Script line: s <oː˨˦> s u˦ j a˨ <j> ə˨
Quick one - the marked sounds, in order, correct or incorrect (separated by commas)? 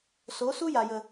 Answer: incorrect, correct